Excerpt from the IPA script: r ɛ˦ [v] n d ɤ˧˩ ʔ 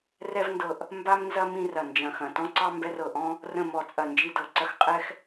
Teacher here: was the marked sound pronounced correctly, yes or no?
yes